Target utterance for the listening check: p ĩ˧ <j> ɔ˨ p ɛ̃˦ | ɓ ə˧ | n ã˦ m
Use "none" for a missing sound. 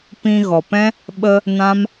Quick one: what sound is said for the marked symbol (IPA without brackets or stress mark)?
ɣ